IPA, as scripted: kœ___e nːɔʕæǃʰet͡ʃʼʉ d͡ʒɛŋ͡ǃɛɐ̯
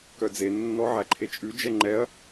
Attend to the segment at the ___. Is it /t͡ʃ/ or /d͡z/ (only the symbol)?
d͡z